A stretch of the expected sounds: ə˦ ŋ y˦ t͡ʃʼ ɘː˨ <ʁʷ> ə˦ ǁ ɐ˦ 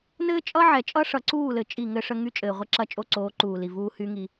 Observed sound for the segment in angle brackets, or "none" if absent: ʁʷ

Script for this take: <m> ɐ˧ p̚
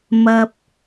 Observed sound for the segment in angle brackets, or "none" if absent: m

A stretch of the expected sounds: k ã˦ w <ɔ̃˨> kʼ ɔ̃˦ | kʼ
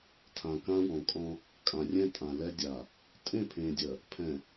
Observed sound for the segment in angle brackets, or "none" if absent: ɔ̃˨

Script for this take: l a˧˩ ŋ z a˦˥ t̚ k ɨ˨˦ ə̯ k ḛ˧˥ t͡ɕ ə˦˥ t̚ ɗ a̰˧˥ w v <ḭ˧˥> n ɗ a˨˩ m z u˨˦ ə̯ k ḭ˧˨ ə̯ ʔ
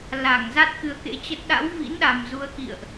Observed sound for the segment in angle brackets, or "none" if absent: ḭ˧˥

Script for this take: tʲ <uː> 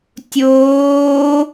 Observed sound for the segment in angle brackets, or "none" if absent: oː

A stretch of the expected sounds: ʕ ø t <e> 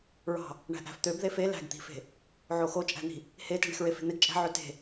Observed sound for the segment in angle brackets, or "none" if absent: e̤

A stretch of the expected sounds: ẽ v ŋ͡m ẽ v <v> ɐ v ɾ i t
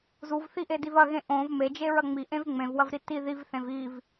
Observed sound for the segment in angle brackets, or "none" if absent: w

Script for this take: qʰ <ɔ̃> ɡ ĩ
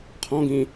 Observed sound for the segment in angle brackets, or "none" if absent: ɔ̃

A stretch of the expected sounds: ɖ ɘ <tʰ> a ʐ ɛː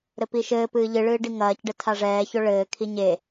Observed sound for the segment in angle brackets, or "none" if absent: tʰ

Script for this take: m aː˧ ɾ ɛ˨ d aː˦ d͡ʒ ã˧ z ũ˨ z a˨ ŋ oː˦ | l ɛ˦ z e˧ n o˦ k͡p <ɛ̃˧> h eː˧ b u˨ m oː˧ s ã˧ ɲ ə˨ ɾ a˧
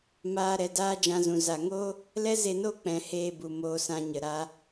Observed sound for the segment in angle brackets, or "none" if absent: ɛ̃˨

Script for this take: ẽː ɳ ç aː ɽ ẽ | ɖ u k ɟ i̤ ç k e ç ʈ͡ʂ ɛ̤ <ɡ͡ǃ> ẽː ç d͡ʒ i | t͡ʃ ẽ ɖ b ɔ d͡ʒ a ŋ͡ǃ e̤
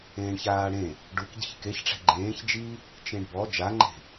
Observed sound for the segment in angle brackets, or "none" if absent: ɡ͡ǃ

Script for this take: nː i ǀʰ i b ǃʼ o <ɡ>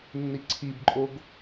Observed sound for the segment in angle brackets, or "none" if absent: ɡ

